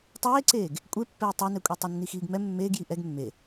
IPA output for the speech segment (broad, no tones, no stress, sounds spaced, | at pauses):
tˤ eː ǀ eː ɡ | kʷʼ e pː ɛː tˤ ɛ n ɛ kʷʼ ɛ tˤ ɛ nː i x iː ɡ m ɛ mː eː ɡ j i ʔ ɛ ɡ mː e